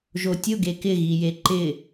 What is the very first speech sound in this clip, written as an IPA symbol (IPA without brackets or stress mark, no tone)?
ʒ